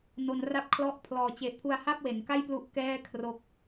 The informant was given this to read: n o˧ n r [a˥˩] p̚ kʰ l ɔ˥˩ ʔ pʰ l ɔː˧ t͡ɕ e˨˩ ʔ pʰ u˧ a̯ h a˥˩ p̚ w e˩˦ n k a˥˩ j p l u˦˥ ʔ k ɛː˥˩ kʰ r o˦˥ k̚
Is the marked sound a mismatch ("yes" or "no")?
no